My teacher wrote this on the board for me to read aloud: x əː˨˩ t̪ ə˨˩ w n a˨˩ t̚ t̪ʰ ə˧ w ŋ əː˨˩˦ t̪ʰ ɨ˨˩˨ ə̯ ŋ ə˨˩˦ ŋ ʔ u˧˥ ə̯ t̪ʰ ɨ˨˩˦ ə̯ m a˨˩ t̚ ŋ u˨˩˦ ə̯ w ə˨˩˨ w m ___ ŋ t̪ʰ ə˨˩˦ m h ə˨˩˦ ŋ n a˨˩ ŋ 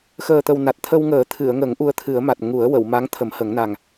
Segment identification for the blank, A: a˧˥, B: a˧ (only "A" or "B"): A